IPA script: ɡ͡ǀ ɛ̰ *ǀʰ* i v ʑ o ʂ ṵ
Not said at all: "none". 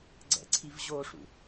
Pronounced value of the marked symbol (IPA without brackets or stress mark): ǀʰ